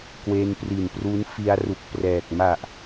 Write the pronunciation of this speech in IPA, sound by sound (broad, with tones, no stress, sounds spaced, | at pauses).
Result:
k w e˧ n p r i˨˩ n p r u˦˥ n f i˧ a̯ r u˨˩ k̚ p r ɛː˨˩ k̚ m a˨˩ ʔ